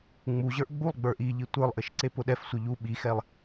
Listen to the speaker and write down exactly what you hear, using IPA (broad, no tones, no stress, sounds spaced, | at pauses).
ŋ͡m u ʑ ə˞ ʔ ɡ͡b u lˠ ɡ͡b ə˞ ʔ i ʎ i tʷ ə˞ lˠ ʔ ɘ ʃ ǀ e p ʊ ɗ ɛ f sʷ ə˞ ʎ u ɓ i x ɛ lˠ